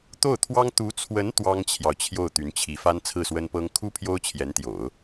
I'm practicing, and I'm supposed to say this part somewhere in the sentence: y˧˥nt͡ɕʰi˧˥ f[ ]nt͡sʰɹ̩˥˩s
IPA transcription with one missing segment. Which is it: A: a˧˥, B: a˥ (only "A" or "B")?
B